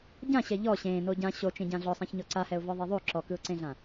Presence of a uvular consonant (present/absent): absent